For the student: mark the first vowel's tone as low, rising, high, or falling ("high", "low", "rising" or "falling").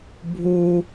high